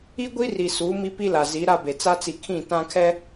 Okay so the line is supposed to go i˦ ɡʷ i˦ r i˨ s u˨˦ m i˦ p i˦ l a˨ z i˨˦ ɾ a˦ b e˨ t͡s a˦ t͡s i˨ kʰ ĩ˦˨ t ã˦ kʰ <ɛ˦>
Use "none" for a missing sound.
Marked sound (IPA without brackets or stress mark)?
ɛ˦